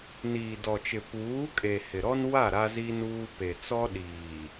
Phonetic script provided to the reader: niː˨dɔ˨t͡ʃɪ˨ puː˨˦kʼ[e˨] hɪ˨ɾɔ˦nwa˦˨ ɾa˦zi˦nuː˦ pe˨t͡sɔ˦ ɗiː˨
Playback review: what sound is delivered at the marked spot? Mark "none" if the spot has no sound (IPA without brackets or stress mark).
e˨